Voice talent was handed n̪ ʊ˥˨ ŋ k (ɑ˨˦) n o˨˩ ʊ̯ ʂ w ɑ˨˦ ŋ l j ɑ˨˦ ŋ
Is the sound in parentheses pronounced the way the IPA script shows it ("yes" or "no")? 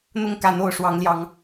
no